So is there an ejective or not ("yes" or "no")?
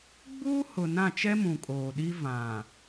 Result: yes